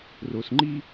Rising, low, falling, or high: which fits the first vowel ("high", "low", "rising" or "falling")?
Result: low